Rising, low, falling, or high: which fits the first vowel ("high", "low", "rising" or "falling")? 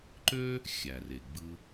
high